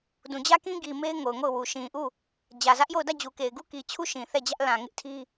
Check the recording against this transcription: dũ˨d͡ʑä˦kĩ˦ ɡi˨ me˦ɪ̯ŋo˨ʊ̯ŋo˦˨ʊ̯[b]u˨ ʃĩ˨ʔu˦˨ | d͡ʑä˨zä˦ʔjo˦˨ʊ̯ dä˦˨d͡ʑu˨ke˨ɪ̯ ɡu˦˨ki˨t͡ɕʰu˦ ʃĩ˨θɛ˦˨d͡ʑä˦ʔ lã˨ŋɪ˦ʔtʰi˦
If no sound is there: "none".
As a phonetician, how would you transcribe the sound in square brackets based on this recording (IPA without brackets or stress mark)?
w